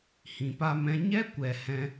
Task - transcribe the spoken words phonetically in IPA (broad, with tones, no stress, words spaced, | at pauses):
hĩ˨pa˧mɛ̃˧ ɲɛ˦kʷɛ˨ hɛ̃˧